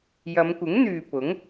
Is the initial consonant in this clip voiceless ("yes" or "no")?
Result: no